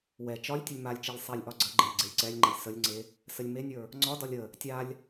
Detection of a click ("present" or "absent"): present